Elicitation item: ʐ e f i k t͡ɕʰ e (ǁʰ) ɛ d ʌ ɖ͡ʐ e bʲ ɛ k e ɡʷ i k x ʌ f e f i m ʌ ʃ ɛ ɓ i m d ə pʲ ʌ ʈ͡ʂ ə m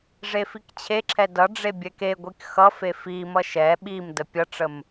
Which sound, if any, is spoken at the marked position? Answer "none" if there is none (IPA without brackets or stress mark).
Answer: ǁʰ